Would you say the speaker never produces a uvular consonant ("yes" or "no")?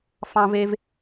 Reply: yes